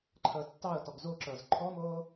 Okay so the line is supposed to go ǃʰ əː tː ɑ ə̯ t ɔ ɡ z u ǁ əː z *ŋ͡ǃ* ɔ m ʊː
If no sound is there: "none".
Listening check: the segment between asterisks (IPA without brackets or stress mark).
ǃʰ